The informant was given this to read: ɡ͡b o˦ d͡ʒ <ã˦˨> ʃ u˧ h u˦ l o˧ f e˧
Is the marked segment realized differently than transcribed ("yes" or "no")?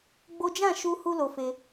no